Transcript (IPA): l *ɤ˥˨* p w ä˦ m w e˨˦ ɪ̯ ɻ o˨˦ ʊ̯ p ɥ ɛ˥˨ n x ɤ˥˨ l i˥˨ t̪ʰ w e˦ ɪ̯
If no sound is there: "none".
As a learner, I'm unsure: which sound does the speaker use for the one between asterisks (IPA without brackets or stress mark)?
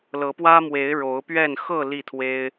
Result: ɤ˨˦